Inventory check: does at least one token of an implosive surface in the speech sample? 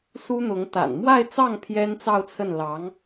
no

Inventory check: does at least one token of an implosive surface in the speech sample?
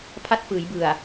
no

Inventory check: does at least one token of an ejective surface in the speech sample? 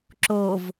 no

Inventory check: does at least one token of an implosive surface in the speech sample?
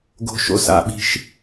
yes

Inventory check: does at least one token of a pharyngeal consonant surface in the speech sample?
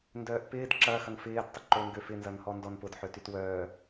yes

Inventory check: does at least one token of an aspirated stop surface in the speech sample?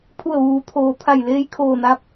yes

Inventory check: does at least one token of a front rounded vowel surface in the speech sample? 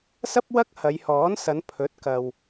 no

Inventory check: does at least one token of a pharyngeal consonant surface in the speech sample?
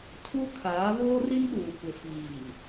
no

